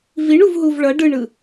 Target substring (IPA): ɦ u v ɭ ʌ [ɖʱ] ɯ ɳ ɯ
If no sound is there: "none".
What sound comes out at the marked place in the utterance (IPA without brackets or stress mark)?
ɖ